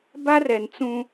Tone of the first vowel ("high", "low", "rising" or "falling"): high